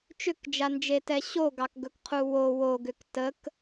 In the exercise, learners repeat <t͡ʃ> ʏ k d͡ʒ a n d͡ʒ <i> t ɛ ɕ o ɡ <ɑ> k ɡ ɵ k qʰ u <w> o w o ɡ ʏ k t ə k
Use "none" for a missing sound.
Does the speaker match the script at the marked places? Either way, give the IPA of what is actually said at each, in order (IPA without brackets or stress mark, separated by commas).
t͡ʃ, e, ɑ, w